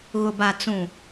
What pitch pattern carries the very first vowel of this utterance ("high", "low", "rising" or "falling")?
low